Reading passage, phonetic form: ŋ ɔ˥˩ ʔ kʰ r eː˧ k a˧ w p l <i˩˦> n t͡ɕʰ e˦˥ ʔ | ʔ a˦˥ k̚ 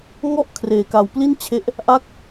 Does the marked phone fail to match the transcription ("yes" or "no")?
yes